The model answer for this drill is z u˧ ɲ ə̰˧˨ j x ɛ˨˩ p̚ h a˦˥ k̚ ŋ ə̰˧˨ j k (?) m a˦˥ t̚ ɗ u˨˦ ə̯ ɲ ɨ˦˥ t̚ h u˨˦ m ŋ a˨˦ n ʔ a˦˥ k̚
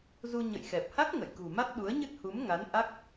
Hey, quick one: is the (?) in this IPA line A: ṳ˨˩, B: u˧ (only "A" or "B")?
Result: A